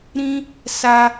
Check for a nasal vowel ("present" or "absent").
present